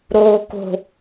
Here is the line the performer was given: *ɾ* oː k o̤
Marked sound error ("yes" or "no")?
no